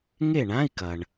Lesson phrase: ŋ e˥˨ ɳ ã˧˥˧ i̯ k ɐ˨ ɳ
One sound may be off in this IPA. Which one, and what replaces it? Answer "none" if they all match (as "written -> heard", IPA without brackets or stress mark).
none